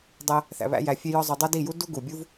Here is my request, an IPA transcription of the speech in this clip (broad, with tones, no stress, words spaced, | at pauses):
dˤæ˧ | θæ̰˧βæ̰˦jæ˧ fʲe˦jɒ˦zˤo˧ dˤæ˦di˦˨ju˦ du˦ɡu˨bʲu˦v